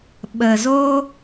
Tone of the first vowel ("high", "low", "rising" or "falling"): low